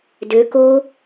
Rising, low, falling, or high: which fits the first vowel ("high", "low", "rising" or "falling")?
rising